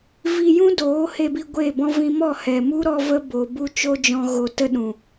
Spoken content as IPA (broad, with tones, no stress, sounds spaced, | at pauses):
v i˧ j ũ˦ d oː˨˦ h e˧ b i˧ ɡʷ e˦˨ b ɔ̃˦ v ĩ˦ m ɔ˦˨ h ɛ˨ m u˦ ɾ ɔ˧ v ə˧ b o˨ b u˦ t͡ʃ o˦ d͡ʒ ɔ̃˧ ɣ o˧ t ə˦ ɗ ũ˨